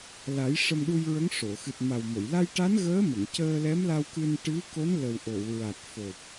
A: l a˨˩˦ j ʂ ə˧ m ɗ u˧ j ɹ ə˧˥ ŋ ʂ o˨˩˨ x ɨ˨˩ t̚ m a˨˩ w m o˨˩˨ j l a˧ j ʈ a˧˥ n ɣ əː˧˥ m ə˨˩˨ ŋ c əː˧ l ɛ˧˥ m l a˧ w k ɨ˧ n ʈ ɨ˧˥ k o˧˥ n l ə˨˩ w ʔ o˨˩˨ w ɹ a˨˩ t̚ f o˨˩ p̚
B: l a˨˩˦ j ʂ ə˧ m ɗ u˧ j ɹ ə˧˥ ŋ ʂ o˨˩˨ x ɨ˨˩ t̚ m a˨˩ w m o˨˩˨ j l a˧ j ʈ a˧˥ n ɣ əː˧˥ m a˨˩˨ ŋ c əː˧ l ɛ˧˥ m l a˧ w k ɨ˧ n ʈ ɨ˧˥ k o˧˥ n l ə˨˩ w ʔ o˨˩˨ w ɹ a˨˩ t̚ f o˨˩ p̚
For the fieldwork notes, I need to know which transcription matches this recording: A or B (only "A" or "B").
A